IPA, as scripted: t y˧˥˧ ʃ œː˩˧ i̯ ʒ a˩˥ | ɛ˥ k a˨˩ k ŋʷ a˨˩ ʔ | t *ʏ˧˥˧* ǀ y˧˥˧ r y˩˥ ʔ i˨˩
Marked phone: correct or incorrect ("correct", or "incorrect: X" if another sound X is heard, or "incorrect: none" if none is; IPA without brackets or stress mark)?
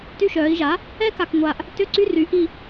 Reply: correct